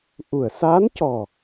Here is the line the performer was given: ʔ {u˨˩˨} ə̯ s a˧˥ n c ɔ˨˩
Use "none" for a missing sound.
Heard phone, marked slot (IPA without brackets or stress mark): u˨˩˨